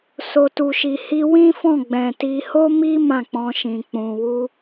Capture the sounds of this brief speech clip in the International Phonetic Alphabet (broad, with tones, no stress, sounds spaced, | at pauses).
s o˨ t u˨ ʃ i˨ h i˧ w ĩ˦ f ɔ̃˦˨ ɡ͡b ɛ̃˨ t i˧ h o˦ m i˦ m ã˦˨ k͡p ɔ̃˧ ʃ ĩ˨ k͡p ũ˨ w u˧